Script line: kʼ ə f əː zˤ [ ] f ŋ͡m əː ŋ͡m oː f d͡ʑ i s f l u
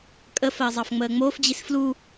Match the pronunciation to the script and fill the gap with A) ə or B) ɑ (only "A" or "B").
B